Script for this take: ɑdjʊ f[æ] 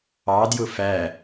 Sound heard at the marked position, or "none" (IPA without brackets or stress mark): æ